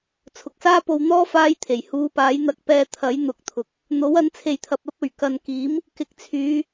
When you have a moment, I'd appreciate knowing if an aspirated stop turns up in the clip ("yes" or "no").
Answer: yes